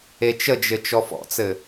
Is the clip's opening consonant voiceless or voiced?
voiceless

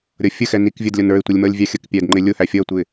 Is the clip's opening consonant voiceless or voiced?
voiced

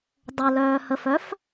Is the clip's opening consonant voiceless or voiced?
voiced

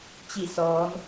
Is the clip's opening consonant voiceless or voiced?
voiceless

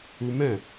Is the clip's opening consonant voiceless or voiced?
voiced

